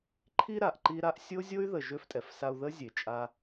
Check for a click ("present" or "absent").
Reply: present